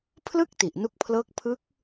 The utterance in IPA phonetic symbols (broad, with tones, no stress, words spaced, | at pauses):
pʰlɯ˥˩k̚ ti˨˩ʔnu˦˥k̚pʰlɤː˦˥k̚ pʰɯ˦˥k̚